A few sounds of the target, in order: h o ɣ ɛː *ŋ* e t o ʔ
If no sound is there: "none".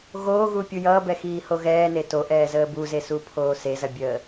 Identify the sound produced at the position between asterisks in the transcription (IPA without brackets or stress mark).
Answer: n